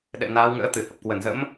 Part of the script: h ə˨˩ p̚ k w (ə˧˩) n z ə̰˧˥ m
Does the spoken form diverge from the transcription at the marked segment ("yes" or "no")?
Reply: no